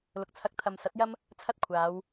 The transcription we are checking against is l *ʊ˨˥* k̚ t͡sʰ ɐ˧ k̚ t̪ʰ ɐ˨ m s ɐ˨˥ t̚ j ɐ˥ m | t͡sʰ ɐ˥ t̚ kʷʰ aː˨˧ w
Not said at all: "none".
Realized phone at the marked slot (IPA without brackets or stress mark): ʊ˨